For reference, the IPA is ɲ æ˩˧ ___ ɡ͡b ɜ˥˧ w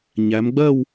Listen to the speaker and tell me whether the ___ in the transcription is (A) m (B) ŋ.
A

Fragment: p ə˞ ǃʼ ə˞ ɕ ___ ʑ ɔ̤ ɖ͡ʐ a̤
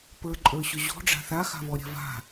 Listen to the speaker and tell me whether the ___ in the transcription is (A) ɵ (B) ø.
A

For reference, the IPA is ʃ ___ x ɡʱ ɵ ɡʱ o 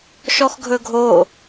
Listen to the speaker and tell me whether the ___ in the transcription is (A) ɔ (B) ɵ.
A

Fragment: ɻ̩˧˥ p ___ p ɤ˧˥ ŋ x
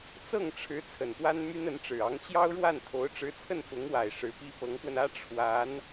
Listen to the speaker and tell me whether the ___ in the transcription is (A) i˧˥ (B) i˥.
B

